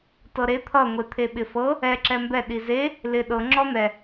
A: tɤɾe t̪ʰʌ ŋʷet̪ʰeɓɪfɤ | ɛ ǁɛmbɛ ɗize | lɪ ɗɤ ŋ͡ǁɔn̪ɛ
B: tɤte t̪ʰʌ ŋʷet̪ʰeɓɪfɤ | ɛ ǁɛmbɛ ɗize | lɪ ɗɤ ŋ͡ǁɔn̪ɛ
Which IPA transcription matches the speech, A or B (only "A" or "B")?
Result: A